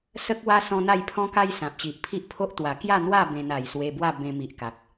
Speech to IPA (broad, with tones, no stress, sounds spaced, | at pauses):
s ə˦ k̚ w a˦ s ɔ̃˦ n̪ a˥˧ j pʰ ɔ̃˦ k a˦ j s ã˨ p̚ ɕ i˨ ʔ pʰ i˦ ʔ pʰ o˦ ʔ t̪ w a˨˩ k j a˥˧ n̪ w a˥˧ b ẽ˧ n a˨˩ j s w e˧ b w a˥˧ b ẽ˧ m i˨ ʔ k a˨ k̚